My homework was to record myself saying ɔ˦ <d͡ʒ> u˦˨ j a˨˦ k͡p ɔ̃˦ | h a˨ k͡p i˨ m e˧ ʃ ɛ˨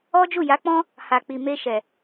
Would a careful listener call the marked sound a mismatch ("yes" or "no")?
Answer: no